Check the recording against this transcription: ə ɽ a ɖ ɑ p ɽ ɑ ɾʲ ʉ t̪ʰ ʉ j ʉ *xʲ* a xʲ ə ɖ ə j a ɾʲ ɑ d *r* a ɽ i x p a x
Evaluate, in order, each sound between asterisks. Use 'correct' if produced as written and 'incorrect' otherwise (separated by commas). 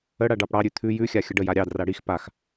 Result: correct, correct